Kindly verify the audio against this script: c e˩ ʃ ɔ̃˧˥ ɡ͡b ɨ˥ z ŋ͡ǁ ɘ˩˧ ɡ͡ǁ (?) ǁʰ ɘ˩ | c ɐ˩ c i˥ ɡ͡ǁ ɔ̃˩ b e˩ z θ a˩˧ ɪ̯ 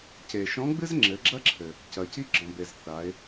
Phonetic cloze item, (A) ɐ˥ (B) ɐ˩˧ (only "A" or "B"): A